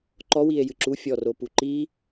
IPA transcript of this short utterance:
ǃ ɔ w i e̯ j ɨ ǁ u fʲ ɔ r o p u ǃ i

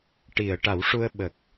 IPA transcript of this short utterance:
ʈ i˨˩˨ ə̯ ʈ a˨˩˦ w ʂ u˧ ə̯ ɓ ə˨˩ k̚

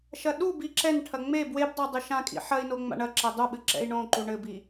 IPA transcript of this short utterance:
ʃ ɐ ɗ u b i ǁ ɛ n ʈʰ ɐ ŋ͡m e b w e b dˤ o dˤ ɨ ʃ ã kʼ ḭ ħ ɐ i̯ n o ŋ͡m a̰ ɳ ɐ ǁ e dˤ u ɓ ɨ ǁ ɛ̰ i̯ ɳ õ ǃ u ɳ ɘ b i

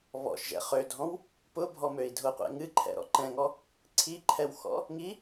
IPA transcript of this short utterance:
β ɔ̰ ʃ ʒ ɛ̰ χ ø dʱ ɔ̃ w | p ʊ bʱ ɔ m ø i̯ dʱ ʊ qʷ ɛ̰ ŋ ɨ ǃʰ ɛ̰ ɾ ɔ̰ ǃ ɛ̃ ŋ ɔ | ǀʰ i ǃʰ ɛ w x ɔ̰ | ŋ i

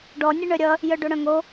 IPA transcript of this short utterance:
ɖ ɔ nʲ ə ɳ œ ɾʲ ʌ | j œ ɖ o ɽ œ̃ ŋ o

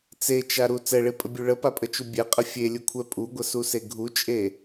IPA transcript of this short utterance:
t͡s e t͡ʃ a ɾ u t͡s ɛ ɭ e pʼ ə bʲ u ɭ ə p a pʼ ə t͡ʃ u bʲ ɛ qʼ ə fʲ e lʲ u kʷʰ ɛ pʼ u ɡʷ ə s u s e ɡʱ u t͡ʃʼ e

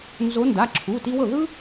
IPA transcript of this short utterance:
n z o˨˦ n d a˩˧˩ ǁʰ u˩˧˩ t i˦ w ɤ˥˩ ð ɯ˦

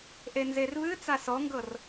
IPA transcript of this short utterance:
ʔ e n z e r β ɨ t͡s a s ɔ ŋ ɡ ɤ r

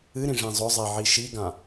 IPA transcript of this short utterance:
ɨ ɾ ĩ ʐ ĩ zˤ ʊ zˤ i ʕ i ʃ i ɡ ã

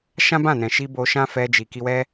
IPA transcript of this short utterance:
ʃ ã˦ b ã˦˨ n ɛ̃˨ ʃ i˧ b o˧ ʃ ã˦ f ɛ˧ d͡ʒ i˨ k i˧ w ɛ˦

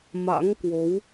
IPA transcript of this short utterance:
m a̰˧˥ ŋ k w o˨˦ w

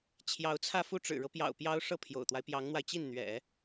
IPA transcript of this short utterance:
t͡ɕʰ j ɑ˧˥ ʊ̯ t͡sʰ ä˥˧ f u˥˩ ʈ͡ʂ ɻ̩˨˩ ɻ ɤ˦ p j ɑ̰˨˩ ʊ̯ p j ɑ˥ ʊ̯ ʂ ɤ˥˩ pʰ j o̰˨˩ ʊ̯ t̪ w a˦ ɪ̯ p j ɑ˧˥ ŋ n̪ w a˧ ɪ̯ t͡ɕ i˥˩ n n̪ ɥ ɛ̰˨˩˦

